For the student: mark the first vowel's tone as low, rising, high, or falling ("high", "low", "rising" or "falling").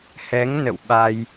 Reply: rising